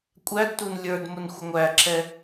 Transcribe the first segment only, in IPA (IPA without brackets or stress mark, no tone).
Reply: kʷʼ